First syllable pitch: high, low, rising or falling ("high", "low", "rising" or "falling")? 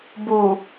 low